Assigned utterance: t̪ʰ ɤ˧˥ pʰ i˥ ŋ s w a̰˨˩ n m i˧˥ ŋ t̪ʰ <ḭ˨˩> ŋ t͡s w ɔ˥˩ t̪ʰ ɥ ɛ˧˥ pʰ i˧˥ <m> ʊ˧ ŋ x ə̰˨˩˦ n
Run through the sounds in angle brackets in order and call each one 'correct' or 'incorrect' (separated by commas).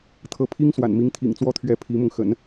correct, correct